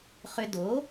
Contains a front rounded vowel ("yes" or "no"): yes